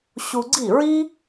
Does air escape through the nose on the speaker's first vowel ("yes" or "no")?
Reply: no